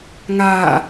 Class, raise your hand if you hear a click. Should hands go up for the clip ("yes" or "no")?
no